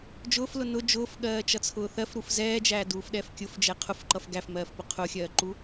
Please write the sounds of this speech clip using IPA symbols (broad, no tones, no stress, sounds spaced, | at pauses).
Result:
d͡ʒ ʊː f l ʊ n ʊ d͡ʒ ʊː f ɠ ɜː t͡ʃ ʌ t͡sʰ ʊː θ ɜ f ɾ u f z ɛː d͡ʒ æː d uː f ɗ ɛ f kʲ ʊ f d͡ʒ ɛ qʰ ʊ f ǃ ʌ f ɡ æ f m ɜː f p ʊ qʰ ʊ xʲ ɜː ǃ u